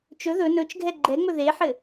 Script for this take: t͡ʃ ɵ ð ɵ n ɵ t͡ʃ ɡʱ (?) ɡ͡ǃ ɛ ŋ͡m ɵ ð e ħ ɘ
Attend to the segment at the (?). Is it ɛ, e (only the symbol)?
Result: ɛ